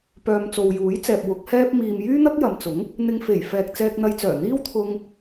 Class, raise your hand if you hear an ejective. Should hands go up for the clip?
no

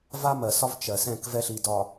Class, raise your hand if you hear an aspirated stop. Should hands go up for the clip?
no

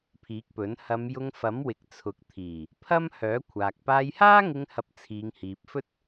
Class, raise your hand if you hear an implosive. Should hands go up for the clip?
no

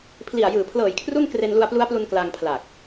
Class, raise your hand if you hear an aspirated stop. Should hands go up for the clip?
yes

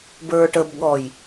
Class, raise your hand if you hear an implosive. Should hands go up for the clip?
yes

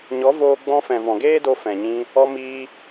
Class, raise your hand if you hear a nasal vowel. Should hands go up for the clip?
yes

